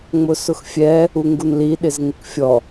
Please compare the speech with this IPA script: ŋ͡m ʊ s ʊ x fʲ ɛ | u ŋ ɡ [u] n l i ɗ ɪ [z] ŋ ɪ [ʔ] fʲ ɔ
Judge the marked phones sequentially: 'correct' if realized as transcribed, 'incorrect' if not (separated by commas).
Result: correct, correct, incorrect